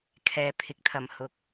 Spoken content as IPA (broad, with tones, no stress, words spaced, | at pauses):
kʰɛː˨pʰɪ˨k̚t̪ʰɐ˨˩m hʊ˨k̚